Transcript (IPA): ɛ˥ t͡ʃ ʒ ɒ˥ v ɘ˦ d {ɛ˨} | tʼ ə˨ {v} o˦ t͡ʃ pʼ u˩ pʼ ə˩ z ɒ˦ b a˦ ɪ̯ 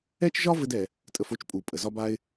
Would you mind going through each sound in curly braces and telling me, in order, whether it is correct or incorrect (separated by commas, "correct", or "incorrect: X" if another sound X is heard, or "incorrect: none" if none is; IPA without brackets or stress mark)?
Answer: incorrect: ɛ˩, incorrect: f